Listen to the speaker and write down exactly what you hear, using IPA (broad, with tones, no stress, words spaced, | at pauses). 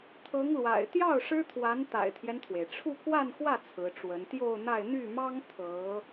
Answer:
t̪ʰɤ˧˥ŋlwa̰˨˩ɪ̯ t̪jɑ˥˩ʊ̯ ʂɻ̩˥t̪ʰwa˧˥n t̪a̰˨˩ɪ̯t̪ʰjɛ˦nt̪ʰwe˩ɪ̯ʈ͡ʂʰu˥˧ kwa˥˧nxwä˥˩ t͡sʰɹ̩˧˥ʈ͡ʂwə˧˥n t̪jo˥˧ʊ̯n̪a˥˧ɪ̯ n̪y˥˩mɑ˥ŋ t̪ʰɤ˧˥